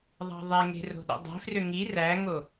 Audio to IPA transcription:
ðˤ ɑ̤ ðˤ e ŋ e̤ r o̤ ɗ ṵ dˤ e̤ f r ø ŋ i r æ ŋ o

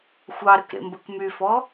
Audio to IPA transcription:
xʷ ɑ ɾ ɵ k ɾ ḛ m b ə k m y f ɔ

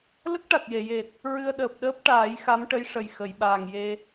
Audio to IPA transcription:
l ə˦˥ k̚ ʈ a˨˩ t̚ j e˨˩˨ j e˨˩ t̚ | ɹ ɨ˧ ə̯ ɗ əː˨˩ p̚ ɗ əː˦˥ p̚ ʈ aː˨˩˦ j x a˧˥ m ʈ ə˧˥ j ʂ ə˨˩ j x ə˨˩˨ j ɓ aː˨˩ ŋ j e˧

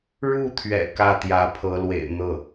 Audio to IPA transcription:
ɻ u˥˩ t̪ʰ ɥ ɛ̰˨˩ k ä˥˩ t̪ j ä˧˥ pʰ ɤ˧˥ l w ḛ˨˩ ɪ̯ n̪ ɤ˥˩

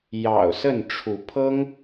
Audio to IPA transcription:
j ɑ̰˨˩ ʊ̯ s ə˥˨ n ʈ͡ʂʰ u˨˦ pʰ ɤ˦ ŋ

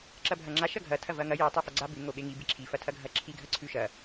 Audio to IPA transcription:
ǁ ɐ bʱ ɐ ŋ͡ǁ a ʃ ɐ ɡʱ ɐ tʰ ɐ v ɐ ŋ ɐ j i tˤ ʉ f ɐ ɡ͡ǀ a b ʉ ŋ o ɓ e ŋ i b i ǁʰ i f ɐ tʰ ɐ ɡʱ ɐ ǁʰ i ɡʱ ɐ ǀʰ ʉ ʃ ɐ

